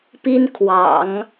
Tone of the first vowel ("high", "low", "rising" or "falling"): high